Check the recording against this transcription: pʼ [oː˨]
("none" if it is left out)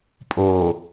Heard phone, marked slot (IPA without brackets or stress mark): oː˨